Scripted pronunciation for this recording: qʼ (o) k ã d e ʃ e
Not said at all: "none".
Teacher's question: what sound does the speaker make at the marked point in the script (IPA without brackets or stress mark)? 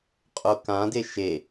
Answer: o